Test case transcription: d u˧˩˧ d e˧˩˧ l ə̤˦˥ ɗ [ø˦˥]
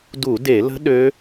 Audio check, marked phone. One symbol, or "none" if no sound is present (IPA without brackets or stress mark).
ø˦˥